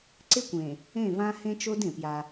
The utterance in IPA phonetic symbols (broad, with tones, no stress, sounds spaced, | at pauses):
ǀ ɪ˦ kʷ ẽ˨ | ẽ˦˨ v ã˦ h ẽ˦ t͡ʃ o˦ d ẽ˨ p j a˦